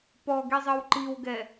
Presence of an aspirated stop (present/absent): absent